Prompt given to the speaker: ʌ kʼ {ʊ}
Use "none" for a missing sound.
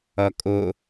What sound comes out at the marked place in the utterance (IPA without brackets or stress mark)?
ʊ